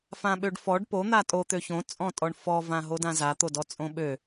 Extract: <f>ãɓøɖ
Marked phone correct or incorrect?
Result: correct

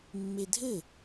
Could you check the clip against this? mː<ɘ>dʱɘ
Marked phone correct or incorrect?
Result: incorrect: e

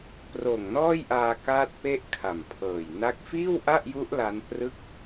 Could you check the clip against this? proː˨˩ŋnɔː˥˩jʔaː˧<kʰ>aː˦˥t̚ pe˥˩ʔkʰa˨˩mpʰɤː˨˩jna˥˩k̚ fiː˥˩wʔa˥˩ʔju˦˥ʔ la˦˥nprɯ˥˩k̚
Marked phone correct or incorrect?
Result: incorrect: k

